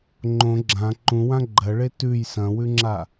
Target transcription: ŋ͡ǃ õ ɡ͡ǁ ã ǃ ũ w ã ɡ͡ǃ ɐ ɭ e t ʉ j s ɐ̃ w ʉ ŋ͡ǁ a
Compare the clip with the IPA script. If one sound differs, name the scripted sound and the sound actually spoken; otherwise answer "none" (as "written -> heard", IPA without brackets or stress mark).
none